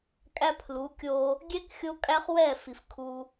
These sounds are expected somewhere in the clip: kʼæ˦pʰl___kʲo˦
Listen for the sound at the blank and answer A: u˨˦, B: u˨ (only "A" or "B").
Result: A